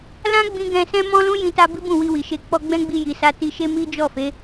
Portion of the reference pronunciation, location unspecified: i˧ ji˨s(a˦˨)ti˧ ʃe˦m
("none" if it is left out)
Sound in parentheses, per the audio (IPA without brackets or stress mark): a˧